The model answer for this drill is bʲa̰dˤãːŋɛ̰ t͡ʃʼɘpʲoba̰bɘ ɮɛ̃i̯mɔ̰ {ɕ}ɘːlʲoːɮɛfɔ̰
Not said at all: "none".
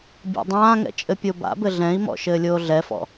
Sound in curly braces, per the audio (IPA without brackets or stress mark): ʃ